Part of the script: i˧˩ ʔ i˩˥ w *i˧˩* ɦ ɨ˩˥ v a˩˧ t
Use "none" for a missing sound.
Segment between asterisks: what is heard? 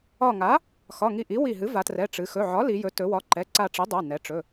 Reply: i˧˩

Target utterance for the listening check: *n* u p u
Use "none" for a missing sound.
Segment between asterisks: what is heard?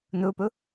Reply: n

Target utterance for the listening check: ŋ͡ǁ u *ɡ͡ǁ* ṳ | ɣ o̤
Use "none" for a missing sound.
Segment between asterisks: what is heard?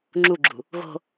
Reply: ɡ͡ǁ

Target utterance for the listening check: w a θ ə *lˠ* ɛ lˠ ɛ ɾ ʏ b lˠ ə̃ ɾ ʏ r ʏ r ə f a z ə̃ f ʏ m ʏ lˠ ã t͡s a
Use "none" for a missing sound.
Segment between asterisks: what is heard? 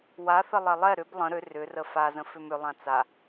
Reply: lˠ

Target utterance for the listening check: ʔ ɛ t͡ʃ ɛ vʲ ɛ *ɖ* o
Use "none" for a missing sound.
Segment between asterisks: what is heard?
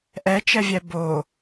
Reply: b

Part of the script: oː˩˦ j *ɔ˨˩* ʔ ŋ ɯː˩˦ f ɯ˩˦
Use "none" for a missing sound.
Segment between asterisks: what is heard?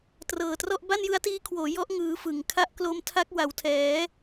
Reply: ɔ˦˥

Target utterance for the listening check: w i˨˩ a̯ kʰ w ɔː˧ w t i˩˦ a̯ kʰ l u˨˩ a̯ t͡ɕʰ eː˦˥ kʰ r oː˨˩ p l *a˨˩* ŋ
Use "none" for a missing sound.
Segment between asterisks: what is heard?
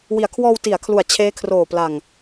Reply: a˨˩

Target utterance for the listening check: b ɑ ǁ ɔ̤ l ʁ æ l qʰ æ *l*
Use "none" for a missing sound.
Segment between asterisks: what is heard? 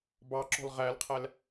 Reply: l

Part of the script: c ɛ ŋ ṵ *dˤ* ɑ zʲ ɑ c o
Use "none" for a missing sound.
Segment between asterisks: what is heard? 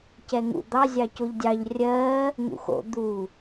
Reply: d̪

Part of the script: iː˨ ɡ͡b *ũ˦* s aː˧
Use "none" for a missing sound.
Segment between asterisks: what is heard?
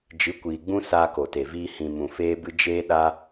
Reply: ũ˦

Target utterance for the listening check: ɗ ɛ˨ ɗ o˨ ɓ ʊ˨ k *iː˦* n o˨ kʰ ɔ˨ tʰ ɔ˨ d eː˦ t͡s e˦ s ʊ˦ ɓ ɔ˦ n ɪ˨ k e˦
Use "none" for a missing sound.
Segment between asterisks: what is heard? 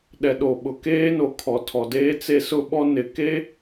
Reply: eː˦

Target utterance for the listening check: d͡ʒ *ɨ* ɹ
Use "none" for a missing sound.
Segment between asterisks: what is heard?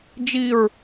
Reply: i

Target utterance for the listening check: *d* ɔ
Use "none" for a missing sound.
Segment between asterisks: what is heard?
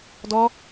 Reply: d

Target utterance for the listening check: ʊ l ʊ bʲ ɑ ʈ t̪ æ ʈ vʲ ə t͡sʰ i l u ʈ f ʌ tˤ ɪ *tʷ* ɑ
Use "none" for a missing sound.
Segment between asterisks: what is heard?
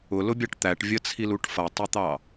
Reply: t̪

